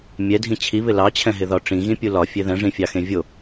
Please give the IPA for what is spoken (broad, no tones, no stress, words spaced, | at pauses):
mʲɛdʱĩ t͡ɕʰiβɪ lɑt͡ɕʰɛ̃ɦɪðɒ ʈ͡ʂĩɣĩpʲu lɒfʲe ðɛ̃ʐĩfʲɑxẽ vʲo